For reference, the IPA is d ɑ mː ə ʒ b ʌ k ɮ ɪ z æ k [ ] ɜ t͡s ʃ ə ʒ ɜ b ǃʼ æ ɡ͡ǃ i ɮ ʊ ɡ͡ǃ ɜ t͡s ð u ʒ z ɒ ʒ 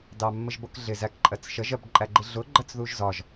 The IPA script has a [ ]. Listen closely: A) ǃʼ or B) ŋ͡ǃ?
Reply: A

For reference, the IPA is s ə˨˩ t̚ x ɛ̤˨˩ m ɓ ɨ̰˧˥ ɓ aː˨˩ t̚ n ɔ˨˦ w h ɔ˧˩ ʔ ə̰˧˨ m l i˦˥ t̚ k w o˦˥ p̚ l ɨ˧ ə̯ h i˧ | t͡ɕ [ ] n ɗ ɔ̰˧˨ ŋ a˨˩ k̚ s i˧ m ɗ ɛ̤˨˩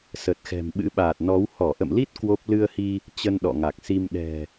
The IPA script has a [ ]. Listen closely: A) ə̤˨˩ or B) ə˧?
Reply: B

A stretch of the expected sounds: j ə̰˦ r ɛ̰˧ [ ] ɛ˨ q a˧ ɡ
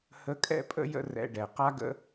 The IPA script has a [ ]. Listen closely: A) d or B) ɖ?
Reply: B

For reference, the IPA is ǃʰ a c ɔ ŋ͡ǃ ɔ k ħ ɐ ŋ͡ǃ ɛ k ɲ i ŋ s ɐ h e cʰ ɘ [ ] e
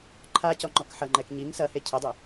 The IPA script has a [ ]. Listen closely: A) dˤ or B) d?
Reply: A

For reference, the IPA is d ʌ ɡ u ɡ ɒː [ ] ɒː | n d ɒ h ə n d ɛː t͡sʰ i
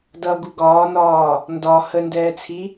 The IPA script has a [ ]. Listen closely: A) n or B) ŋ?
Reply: A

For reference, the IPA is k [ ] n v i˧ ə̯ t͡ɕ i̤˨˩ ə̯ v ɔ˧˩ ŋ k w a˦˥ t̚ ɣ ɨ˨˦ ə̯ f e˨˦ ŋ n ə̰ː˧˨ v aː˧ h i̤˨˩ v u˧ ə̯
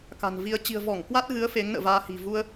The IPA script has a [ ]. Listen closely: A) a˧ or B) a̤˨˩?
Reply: B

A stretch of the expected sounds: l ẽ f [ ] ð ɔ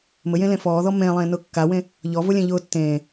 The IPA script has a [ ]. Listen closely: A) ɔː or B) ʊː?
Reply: A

